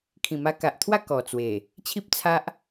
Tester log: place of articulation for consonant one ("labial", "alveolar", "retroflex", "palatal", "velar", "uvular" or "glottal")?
velar